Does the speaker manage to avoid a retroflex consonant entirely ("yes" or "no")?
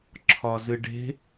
no